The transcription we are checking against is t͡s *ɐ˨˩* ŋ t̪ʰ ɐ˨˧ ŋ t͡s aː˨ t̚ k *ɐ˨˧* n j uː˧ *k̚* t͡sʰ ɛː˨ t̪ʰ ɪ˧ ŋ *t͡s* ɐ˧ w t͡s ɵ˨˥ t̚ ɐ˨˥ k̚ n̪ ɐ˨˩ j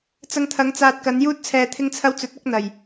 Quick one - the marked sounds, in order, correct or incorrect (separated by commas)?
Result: incorrect, correct, incorrect, incorrect